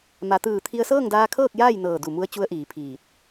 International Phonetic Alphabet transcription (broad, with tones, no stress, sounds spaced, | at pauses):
m a˩˧ t̪ ɯː˧˩ t̪ʰ i˧ ə̯ s ɤː˥˨ ŋ d aː˧ kʰ ɤː˥˨ k̚ j aː˥˨ j n ɤː˧˩ d u˧˩ m u˧ ə̯ t͡ɕ u˧˥ ə̯ ʔ iː˩˧ pʰ iː˧˩ t̚